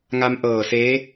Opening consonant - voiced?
yes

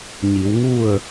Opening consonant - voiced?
yes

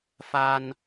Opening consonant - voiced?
no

